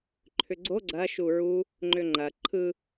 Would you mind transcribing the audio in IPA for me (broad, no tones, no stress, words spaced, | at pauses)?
ǃʰʏɡ͡ǀo ɡ͡ǀɐ ʃuɹu | ŋ͡ǃʏŋ͡ǃɐ ǃʰɯ